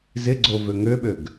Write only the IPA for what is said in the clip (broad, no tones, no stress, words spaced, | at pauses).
zɪɡ͡ǀo vøŋøɓøɡ